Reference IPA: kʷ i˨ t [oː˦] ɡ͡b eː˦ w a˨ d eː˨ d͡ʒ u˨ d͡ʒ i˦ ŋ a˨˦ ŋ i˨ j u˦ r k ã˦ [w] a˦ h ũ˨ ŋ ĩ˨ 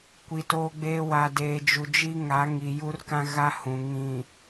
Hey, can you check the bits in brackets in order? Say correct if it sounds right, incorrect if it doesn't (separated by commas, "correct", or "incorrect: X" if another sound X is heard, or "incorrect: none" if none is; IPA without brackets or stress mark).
correct, incorrect: ɣ